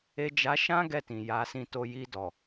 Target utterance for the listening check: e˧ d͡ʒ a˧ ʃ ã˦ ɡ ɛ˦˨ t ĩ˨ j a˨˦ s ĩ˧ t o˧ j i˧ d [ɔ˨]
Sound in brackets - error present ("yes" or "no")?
no